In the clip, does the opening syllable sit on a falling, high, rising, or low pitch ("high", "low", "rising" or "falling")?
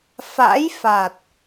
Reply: rising